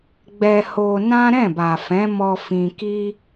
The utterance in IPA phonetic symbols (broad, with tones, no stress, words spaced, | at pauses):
ɡ͡bɛ˧ho˧nã˦ ɾɛ̃˦˨ba˨ fɛ̃˨˦mɔ˧ fĩ˧ki˦